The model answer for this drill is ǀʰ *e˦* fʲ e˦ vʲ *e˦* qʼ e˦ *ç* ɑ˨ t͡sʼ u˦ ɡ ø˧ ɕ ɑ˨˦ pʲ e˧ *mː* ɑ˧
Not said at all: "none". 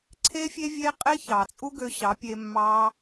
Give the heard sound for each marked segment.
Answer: e˦, e˦, ç, mː

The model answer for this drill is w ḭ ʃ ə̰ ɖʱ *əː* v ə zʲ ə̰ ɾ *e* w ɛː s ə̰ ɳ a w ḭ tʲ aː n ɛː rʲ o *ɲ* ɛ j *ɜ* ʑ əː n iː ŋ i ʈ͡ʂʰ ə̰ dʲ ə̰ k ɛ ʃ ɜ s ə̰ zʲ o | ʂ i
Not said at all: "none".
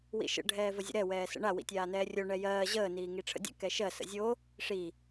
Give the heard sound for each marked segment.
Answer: ɛː, ɛ, ɳ, ɜː

